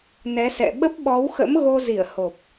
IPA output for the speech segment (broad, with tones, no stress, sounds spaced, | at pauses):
n ɛ˨˦ s ɛ̰˧˨ ɓ ə˦˥ p̚ ɓ ɔ˨˦ w x ə̰˧˥ m ɣ o˧ z i˧˩ ə̯ h o˨˩ p̚